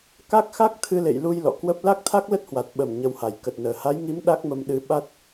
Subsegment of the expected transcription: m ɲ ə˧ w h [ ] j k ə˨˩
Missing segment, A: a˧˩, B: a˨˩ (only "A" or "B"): B